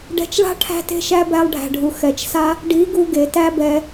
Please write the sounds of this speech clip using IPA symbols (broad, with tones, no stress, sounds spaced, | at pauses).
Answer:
ɖ ɛ̤˧ t͡ʃ ɭ a̤˦ ʈʰ æ̤˦ t e̤˦ ʃ æ˦ b æ˧ lˠ ɖʱ æ̤˨ ɖʱ u˨ x ɛ˨ t͡ʃ s a˦ | ɖ i˨˦ ɡ u˧ ɡ e˨ t æ˦ b ɛ˧